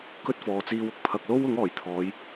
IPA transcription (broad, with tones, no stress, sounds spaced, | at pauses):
k ɵ˥ t̚ f ɔː˨ t͡s iː˧ w ʊ˨ k̚ pʰ ɐ˨ k̚ l o˥ w ʊ˨˥ ŋ ɔː˨˩ j t̪ʰ ɔː˨˧ j